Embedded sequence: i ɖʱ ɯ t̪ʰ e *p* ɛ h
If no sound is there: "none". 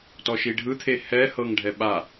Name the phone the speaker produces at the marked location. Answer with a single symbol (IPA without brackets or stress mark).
h